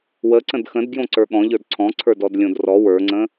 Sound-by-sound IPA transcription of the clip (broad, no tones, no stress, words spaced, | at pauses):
wəǀə̃d xə̃d ɡjõǀə˞ɠɔ̃ʎə˞d ǀʰɔ̃ǀʰə˞dɔd lʲõdrɔ wə˞ŋ͡ǀə̃